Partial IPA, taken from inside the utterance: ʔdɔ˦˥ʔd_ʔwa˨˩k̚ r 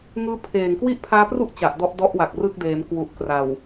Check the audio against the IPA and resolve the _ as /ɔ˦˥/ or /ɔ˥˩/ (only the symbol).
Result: ɔ˦˥